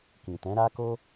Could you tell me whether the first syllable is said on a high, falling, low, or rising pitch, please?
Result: low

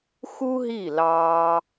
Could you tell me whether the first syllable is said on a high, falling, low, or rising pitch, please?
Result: high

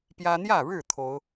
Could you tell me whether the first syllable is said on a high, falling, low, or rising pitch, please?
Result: high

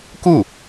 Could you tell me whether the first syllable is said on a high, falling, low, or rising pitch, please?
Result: falling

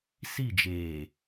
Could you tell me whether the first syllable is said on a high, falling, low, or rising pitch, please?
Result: falling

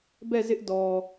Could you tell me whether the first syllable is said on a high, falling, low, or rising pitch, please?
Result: falling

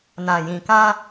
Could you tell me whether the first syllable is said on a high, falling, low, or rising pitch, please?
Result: low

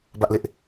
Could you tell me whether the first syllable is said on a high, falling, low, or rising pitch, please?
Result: high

